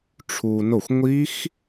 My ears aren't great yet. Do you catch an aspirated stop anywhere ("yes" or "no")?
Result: yes